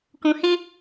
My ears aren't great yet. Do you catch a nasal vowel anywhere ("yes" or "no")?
yes